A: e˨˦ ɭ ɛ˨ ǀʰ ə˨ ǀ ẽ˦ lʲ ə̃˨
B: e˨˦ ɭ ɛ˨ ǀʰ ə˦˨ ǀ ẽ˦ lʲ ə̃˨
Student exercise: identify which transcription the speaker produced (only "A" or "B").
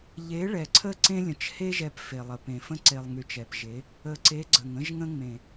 B